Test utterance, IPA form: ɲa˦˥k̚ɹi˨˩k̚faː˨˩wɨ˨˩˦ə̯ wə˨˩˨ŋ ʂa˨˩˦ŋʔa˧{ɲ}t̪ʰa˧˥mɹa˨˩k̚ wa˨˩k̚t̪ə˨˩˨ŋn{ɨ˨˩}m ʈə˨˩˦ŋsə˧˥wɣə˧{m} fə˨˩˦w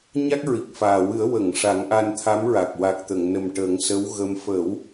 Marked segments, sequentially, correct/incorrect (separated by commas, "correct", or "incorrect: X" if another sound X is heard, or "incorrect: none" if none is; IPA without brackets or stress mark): incorrect: n, incorrect: ə˨˩, correct